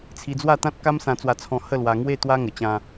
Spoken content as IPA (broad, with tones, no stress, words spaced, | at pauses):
t͡sʰi˧d͡zwa˥˧t̪ã˦t̚ ka˦msã˧t͡swa˧t͡sʰɔ̃˧ hə˥˧lwa˧ŋwe˥˧ t̪wa˦ ŋə˧t͡ɕã˦